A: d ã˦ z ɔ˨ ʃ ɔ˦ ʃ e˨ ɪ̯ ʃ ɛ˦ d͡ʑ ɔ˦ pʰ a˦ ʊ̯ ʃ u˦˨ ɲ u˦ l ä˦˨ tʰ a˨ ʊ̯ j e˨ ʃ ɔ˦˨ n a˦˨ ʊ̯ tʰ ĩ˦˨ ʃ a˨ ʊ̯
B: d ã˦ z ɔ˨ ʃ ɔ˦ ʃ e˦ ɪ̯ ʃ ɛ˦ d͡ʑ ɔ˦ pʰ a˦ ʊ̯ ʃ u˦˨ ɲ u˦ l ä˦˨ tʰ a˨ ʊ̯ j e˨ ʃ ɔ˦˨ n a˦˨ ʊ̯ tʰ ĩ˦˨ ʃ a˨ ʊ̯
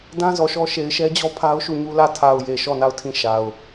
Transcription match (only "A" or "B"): A